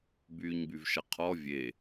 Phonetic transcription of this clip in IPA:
b yː ɲ b y v ʃ ɐ qʰ ɔ vʲ e

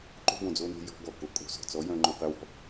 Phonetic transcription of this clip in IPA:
ǃ o̤˦ b õ˩ d͡z o˦˨ n e̤˦˨ j ɔ̤˦ ɡ ɔ˩ k o˩ kʼ o̤˦˨ s ɔ̤˩ t͡s ɔ˨˥ j œ̃˦ ŋ͡ǃ œ̃˦˨ q e˦ w ɔ̤˦˨

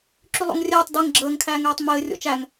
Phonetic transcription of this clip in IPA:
ǁ y lˠ o̰ ŋ rʲ ɛː tˤ d ɛ ŋ ɡ͡ǁ əː ŋ kʰ æː ŋ ɛː tˤ m ɘː rʲ o̰ t͡ʃ æ ŋ

